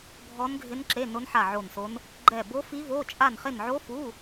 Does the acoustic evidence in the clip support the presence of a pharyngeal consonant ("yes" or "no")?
yes